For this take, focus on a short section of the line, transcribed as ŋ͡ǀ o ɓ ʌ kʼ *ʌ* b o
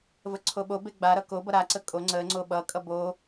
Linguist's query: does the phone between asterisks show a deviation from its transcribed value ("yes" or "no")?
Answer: no